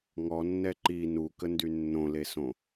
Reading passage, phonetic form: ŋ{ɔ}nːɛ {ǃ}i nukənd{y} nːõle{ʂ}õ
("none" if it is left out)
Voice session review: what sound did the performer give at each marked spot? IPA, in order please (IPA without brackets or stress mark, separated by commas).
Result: ɔ, ǃ, y, s